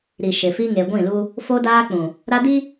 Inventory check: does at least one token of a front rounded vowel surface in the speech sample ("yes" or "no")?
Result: no